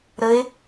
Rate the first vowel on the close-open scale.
mid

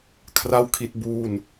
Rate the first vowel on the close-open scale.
open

